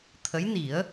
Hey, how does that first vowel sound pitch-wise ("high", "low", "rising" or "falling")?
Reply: rising